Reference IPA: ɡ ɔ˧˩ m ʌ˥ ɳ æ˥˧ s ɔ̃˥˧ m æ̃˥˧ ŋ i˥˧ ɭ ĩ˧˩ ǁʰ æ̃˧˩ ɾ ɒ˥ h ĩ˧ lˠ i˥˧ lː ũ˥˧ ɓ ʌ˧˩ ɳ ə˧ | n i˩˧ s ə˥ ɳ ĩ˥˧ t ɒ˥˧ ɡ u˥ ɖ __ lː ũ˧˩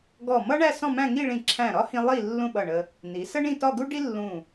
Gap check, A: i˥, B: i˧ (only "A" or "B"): A